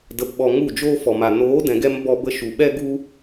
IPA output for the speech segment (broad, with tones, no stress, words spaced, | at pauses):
də˨pɓɔ˨ ŋu˦˨d͡ʒoː˦fɔ˨ma˨ noː˨˦dɛ̃˨ɡɛ˧m bɔ˧bə˧ʃu˨ ɓɛ˦ɡu˦